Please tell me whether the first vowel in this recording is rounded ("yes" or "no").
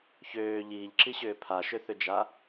yes